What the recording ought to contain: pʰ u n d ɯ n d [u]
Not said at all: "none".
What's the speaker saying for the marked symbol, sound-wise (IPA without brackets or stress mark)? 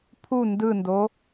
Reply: o